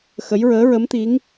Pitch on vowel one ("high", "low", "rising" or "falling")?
rising